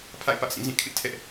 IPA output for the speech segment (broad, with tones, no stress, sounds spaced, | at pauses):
pʰ a̰˦˨ ɪ̯ p ä˦ ʔ s ĩ˦˨ z ĩ˦˨ kʰ ɪ˦ ʔ tʰ ɛ˦ ʔ